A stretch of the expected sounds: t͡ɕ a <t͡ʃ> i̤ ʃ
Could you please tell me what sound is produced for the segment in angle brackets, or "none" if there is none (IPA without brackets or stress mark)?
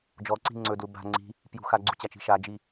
t͡ʃ